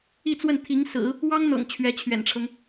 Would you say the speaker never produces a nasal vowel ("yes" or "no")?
yes